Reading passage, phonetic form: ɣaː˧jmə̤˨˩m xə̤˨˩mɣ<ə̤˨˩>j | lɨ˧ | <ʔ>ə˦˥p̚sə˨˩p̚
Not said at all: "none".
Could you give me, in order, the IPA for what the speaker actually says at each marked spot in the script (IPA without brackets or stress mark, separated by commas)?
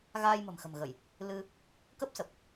ə˧˩˨, k